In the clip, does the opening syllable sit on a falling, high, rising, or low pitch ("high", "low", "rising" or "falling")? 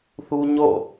high